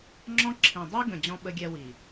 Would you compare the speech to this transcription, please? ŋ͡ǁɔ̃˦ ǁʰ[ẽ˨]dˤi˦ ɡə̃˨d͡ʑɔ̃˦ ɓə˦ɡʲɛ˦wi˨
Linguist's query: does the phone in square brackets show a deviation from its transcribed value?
yes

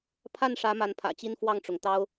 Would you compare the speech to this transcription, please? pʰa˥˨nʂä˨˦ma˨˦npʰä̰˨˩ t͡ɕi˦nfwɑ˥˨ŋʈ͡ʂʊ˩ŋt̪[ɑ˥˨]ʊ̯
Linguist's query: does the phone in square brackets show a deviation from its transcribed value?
yes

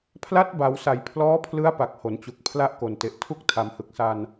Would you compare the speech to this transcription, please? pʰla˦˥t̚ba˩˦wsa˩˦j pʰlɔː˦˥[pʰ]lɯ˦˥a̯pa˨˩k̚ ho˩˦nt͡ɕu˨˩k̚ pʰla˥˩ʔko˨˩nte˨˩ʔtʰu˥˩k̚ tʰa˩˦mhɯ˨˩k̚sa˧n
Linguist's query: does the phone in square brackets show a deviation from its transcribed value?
no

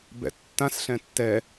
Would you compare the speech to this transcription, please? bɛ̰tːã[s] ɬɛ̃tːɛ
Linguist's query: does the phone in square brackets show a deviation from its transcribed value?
no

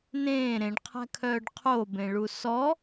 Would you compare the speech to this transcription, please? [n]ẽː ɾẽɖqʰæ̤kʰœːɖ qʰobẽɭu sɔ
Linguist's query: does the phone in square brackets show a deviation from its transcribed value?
no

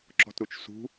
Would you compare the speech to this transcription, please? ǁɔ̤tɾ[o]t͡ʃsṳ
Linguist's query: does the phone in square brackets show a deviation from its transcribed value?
yes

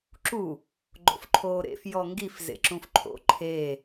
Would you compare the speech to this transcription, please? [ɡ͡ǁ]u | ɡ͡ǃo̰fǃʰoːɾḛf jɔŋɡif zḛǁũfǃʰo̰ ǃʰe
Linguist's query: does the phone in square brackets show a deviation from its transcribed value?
yes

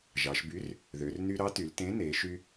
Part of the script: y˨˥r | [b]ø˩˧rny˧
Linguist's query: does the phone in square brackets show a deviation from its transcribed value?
yes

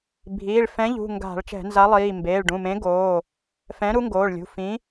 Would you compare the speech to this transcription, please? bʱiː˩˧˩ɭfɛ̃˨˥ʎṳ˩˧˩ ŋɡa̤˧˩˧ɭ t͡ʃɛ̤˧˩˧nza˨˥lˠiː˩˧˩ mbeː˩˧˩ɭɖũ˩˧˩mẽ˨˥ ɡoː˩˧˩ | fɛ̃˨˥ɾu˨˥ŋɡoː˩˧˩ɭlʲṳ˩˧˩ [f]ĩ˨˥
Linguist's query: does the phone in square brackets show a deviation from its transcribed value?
no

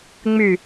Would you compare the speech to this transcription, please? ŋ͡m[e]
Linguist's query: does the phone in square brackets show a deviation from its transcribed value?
yes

